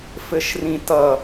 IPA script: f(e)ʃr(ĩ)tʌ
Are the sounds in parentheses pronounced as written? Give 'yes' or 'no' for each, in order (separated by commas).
no, yes